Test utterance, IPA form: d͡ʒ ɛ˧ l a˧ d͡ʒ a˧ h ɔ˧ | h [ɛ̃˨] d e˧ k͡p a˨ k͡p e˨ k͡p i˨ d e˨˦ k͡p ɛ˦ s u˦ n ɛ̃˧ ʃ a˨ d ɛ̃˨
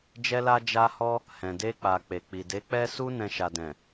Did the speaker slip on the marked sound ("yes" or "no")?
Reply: no